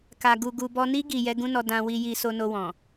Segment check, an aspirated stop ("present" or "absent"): absent